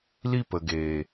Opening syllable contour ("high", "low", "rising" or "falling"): high